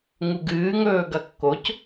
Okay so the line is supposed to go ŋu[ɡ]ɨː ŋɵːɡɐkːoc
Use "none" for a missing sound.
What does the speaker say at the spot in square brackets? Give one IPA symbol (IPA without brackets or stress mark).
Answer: ɡ